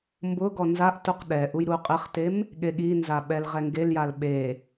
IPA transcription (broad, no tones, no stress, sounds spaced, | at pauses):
m b ʊ ɡ ɔ n z a ʔ t u q ɗ ɛ ʔ u j ɾ u qʼ e χ t e m | ɠ e ɠ i n z a ɓ ɛ l ʁ ɛ ŋ ɡ e l j a l ɓ e